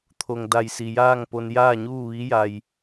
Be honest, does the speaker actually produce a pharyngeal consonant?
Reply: no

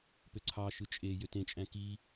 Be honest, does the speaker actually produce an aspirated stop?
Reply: yes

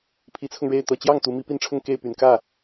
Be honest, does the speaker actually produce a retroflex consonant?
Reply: yes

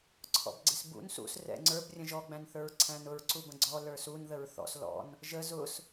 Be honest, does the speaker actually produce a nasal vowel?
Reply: yes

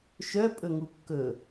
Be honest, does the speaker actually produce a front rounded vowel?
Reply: yes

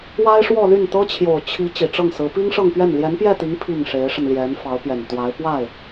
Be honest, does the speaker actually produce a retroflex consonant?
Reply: yes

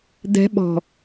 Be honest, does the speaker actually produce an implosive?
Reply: yes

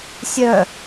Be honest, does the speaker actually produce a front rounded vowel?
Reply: yes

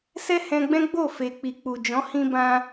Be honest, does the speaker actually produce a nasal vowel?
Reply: yes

